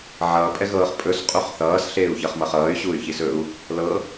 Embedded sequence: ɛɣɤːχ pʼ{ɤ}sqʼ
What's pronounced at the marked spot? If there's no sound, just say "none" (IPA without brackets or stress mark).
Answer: ɵ